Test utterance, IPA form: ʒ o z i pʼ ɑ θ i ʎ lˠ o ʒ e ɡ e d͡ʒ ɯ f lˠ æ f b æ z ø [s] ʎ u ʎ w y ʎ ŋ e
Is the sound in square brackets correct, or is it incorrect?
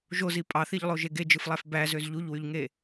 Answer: incorrect